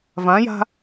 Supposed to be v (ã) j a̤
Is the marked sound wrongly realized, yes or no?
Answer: no